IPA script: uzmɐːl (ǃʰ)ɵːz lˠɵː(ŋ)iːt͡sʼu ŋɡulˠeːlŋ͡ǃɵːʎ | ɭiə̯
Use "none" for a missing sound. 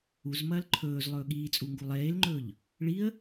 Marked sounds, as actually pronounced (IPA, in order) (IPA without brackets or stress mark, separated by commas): ǃʰ, ɠ